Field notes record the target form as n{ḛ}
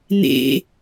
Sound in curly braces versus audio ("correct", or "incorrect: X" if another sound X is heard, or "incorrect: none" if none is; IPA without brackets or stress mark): correct